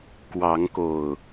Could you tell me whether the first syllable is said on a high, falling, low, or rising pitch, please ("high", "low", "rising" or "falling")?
rising